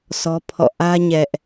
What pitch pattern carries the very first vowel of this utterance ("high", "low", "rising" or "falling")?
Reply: high